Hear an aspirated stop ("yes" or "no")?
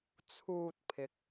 yes